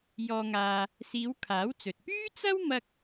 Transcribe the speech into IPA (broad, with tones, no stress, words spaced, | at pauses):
jɔː˧ŋaː˧ | siː˨˧w kʰaː˨˥wt͡sɵ˨t̚ pyː˥t͡sɐ˥w mɐ˥k̚